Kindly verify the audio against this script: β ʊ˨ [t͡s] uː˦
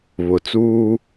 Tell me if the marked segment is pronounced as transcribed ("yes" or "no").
yes